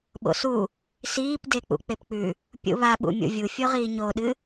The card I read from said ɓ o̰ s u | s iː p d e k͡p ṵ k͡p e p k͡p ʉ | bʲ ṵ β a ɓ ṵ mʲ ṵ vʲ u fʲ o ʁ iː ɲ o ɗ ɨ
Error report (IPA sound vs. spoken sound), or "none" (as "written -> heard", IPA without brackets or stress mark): bʲ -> pʲ